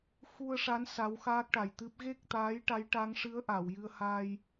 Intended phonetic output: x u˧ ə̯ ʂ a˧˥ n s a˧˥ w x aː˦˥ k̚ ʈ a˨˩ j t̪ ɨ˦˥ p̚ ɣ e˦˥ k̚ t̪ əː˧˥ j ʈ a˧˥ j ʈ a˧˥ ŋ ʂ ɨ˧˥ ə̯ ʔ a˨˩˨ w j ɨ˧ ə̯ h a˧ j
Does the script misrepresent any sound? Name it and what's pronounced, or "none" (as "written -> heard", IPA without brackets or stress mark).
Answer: əː˧˥ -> aː˧˥